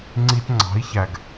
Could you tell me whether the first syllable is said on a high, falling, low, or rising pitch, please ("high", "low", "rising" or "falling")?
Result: high